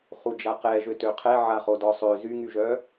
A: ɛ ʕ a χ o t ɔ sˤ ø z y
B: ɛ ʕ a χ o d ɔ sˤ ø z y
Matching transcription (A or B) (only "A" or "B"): B